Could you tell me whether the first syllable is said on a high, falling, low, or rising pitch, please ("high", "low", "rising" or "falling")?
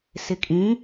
low